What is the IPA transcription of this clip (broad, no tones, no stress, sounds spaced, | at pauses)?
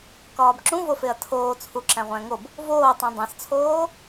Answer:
k ɒː b ǁ ũ v o f e ɐ̯ tʰ oː t͡sʰ u ǁ æ̃ ʁʷ æ̃ ŋ o b | v oː tˤ ĩ dˤ æ̃ s t͡sʰ oː